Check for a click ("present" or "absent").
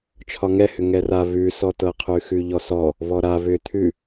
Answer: absent